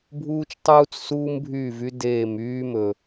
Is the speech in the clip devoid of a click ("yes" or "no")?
yes